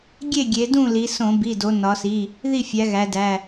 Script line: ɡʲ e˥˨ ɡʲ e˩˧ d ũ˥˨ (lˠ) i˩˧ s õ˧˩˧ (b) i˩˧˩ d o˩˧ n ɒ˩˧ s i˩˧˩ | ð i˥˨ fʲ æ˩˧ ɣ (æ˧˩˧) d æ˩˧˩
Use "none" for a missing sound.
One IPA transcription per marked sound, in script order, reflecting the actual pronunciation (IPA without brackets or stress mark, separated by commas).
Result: l, b, æ˩˧